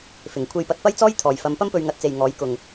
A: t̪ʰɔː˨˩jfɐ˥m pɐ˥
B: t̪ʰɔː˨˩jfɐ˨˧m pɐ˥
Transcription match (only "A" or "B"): B